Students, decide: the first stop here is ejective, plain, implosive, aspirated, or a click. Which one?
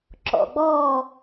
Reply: click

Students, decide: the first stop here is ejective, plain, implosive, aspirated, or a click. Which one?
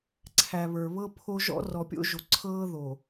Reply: click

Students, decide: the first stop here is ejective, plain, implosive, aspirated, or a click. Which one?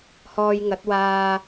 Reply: plain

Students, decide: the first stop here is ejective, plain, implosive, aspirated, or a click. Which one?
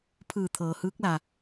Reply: aspirated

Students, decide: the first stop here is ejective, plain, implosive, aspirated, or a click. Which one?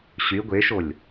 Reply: plain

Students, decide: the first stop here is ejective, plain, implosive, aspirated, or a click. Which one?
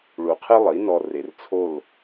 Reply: aspirated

